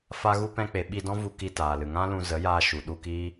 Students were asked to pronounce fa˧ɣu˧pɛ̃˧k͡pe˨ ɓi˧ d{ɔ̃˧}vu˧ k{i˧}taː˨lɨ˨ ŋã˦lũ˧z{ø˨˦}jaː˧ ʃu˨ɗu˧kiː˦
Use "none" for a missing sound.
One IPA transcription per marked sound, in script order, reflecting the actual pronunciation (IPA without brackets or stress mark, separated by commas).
ɔ̃˦, i˧, ə˨˦